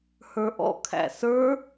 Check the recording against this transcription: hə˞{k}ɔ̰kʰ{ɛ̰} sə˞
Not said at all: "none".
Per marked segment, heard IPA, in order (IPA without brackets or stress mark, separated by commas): ʔ, æ̰